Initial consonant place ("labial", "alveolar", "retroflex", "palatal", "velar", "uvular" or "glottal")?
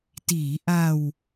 alveolar